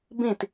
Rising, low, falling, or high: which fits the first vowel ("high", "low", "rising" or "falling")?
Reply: falling